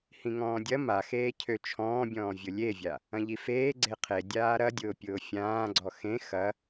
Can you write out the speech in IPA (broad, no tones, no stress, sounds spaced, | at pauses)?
h ĩ ŋ ɔ̃ː dʲ ɐ m a x eː cʰ ø t͡ʃʰ ɔ̃ː bʲ ɔ̃ː vʲ ʊ lʲ e vʲ a | ɐ̃ ʎ i f eː ɡ͡ǀ e qʰ e dʲ aː ɾ ɐ dʲ ʊː pʲ ʊː fʲ ãː ɡ͡ǀ ɔ x ẽ x ɐ